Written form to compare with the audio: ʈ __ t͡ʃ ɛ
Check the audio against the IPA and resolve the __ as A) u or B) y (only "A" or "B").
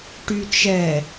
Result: B